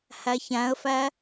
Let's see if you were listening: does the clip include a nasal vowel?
yes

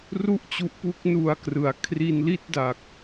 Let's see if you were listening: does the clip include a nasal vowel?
no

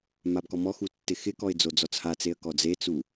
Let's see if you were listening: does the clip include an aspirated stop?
no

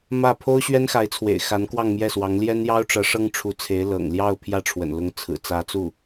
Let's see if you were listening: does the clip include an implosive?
no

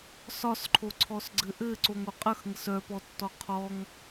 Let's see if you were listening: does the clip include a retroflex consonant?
no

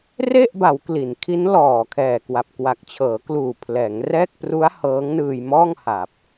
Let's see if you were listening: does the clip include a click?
no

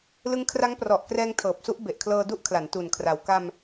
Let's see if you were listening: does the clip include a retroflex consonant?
no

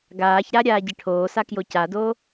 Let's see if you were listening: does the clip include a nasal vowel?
no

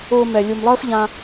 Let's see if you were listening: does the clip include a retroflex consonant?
no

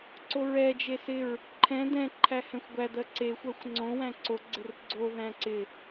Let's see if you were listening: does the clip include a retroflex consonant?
no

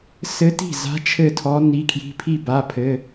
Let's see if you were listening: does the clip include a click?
no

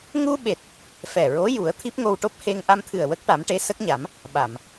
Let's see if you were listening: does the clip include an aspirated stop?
yes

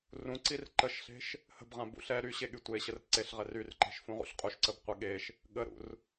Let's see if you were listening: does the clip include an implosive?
yes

